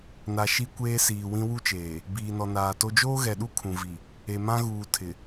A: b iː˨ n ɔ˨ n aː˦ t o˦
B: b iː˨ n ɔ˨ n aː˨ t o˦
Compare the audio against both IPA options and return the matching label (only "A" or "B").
B